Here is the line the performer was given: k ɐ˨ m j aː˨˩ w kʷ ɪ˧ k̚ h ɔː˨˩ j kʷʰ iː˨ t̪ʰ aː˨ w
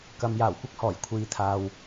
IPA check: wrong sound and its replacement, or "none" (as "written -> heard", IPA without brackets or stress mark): none